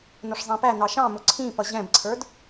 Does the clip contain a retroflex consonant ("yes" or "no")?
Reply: yes